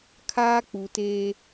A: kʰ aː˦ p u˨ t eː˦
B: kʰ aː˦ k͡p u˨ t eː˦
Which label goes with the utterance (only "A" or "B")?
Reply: B